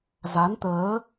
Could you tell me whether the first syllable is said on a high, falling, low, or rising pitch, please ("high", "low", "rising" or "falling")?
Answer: rising